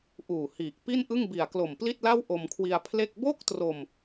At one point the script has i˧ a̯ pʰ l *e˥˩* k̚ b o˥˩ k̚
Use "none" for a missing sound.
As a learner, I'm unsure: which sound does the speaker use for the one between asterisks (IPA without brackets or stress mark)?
e˥˩